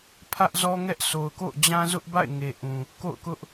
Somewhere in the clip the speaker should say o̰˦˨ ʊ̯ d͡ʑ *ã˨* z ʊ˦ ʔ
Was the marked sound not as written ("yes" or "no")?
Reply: yes